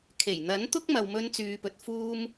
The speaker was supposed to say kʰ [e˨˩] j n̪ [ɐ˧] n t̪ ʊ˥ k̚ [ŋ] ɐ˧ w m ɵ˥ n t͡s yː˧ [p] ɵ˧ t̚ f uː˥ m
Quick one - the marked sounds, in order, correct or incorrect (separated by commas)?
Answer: correct, incorrect, incorrect, correct